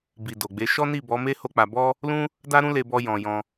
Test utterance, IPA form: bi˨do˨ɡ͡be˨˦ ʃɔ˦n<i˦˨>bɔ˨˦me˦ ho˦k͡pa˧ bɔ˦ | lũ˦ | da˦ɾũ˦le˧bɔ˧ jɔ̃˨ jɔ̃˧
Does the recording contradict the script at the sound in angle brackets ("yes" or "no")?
no